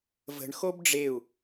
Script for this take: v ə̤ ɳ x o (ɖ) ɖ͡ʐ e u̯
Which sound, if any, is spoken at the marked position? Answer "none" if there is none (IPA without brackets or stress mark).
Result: b